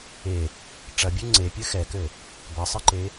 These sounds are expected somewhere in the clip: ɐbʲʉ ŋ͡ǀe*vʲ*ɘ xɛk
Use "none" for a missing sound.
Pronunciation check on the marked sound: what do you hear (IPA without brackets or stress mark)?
pʲ